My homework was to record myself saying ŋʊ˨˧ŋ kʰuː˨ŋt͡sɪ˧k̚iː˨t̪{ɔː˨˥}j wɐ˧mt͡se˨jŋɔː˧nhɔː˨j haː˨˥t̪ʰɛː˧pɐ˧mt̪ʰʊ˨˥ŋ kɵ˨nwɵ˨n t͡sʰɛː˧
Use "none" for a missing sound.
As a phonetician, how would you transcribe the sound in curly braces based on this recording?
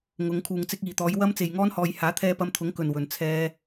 ɔː˨˧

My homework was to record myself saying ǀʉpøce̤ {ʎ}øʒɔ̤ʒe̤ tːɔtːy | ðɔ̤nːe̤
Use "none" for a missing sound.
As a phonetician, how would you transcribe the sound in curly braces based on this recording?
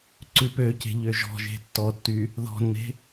ʎ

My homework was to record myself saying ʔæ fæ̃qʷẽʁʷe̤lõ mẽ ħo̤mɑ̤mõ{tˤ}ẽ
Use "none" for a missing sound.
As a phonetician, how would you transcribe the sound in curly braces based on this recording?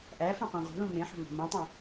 tˤ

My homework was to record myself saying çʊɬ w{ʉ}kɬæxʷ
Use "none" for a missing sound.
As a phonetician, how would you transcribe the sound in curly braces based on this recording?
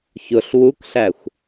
u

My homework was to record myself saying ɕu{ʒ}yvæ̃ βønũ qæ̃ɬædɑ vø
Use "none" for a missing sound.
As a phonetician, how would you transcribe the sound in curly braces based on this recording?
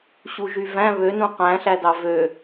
ʒ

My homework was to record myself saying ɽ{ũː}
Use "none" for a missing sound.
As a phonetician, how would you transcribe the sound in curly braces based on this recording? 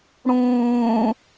ũː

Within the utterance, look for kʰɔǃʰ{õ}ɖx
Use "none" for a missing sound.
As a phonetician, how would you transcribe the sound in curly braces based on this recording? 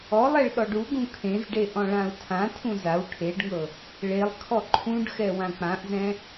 ũ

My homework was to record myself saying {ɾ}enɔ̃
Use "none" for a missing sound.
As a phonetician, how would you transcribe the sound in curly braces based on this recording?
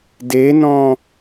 d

